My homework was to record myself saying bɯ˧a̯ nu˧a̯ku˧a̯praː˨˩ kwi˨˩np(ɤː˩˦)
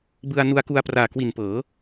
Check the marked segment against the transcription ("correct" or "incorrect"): correct